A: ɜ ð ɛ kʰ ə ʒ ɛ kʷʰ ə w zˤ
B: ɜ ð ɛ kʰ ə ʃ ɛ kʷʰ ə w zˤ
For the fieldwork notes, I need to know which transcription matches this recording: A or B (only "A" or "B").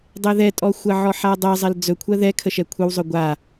B